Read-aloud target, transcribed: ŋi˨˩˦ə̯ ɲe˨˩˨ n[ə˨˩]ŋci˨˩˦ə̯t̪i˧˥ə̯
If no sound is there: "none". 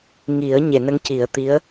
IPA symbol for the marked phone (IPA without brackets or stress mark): ə˧˥